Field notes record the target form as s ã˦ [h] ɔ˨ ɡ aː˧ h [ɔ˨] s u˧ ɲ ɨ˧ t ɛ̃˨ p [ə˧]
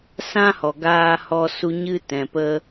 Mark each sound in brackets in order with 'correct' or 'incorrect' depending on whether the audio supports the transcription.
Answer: correct, incorrect: ɔ˧, correct

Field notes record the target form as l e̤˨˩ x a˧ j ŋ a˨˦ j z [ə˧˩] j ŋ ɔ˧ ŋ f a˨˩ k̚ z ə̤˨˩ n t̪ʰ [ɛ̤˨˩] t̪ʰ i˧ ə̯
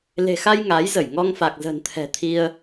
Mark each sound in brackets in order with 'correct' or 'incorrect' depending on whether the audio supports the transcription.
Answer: correct, correct

